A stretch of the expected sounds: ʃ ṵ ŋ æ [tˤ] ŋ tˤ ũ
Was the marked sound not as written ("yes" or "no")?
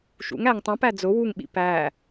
yes